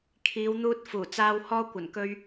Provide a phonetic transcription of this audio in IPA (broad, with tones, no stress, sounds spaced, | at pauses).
kʰ iː˨˧ w n̪ uː˧ t̚ f uː˨˩ t͡s aː˧ w h ɔː˧ kʷ ɐ˨˩ n k ɵ˧ ɥ